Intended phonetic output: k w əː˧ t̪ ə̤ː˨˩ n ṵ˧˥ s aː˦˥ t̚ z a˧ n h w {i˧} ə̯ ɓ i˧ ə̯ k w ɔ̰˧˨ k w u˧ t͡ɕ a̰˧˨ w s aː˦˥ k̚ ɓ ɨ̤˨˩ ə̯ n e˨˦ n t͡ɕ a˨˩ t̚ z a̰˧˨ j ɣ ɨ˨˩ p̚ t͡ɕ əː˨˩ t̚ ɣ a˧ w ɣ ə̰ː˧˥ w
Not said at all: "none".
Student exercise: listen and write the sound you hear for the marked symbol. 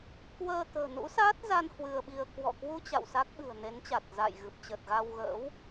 ɨ˧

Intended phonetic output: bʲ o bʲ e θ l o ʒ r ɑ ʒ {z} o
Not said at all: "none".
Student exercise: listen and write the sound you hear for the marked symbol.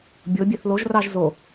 z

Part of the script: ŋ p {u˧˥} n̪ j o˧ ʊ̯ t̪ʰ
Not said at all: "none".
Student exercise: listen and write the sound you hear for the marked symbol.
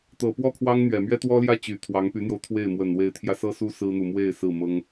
y˧˥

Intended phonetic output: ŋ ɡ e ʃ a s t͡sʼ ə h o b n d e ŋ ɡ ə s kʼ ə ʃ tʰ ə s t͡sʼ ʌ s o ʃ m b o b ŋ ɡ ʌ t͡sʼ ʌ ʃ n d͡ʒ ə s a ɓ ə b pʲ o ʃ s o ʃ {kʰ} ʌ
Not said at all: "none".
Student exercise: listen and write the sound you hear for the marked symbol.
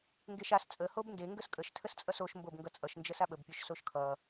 kʰ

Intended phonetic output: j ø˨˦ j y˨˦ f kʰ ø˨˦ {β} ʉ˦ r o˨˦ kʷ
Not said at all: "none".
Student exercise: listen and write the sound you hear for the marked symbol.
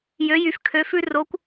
f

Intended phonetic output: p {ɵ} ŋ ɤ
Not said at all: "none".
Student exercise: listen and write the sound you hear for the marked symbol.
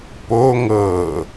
o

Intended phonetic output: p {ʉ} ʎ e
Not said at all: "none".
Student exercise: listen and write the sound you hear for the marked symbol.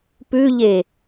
ʉ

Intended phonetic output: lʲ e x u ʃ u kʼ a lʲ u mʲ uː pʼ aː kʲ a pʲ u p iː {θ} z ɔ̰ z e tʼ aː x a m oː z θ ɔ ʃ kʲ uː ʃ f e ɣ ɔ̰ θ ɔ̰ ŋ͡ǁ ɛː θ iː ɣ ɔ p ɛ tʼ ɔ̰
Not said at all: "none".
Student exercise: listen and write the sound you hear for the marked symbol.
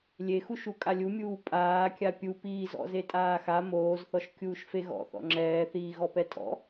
none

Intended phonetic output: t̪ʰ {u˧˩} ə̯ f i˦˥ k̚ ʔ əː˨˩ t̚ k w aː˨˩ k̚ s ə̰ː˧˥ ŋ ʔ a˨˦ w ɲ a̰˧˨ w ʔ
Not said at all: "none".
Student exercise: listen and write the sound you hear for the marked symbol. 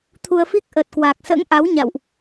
u˧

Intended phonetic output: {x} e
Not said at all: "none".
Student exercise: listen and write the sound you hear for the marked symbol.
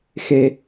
x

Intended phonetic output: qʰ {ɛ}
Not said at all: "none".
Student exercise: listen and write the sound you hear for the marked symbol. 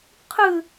ɨ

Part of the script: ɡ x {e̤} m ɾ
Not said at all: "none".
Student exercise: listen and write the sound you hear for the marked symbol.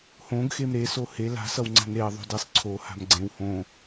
e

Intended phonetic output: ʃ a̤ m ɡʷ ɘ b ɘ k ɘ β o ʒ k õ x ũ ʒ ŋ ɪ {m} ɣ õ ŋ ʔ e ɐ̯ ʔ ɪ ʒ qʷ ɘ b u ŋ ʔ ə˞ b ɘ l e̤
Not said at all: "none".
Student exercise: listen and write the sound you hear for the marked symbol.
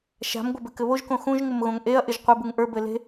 m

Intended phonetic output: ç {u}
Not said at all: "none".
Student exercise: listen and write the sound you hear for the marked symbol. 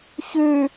ʉ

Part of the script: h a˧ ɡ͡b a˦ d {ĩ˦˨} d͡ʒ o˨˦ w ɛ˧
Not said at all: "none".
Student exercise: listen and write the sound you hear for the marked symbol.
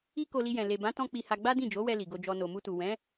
ĩ˦˨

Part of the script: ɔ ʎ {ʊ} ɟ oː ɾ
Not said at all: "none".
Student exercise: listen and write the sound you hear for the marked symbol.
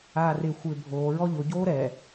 ʊ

